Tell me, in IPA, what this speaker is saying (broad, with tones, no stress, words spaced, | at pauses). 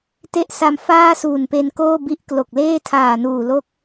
te˦˥ʔsa˧m faː˥˩suː˨˩npe˧nkoː˥˩ bi˦˥ʔklo˨˩k̚leː˥˩ tʰaː˨˩nuː˨˩lo˦˥k̚